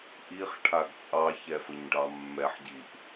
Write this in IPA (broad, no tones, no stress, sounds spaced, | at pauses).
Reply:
ʔ i χ ʈʰ a ɡ t͡sʼ ɑ ç ɛ f ə ɲ ɖ ɑ mː ɛ ħ ɟ i ʔ